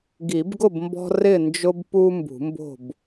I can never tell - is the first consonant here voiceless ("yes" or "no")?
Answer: no